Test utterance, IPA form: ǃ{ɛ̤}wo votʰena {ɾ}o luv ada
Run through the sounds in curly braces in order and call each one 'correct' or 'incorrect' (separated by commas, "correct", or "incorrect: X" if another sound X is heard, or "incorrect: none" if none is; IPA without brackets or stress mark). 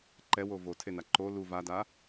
incorrect: ɛ, incorrect: ǃ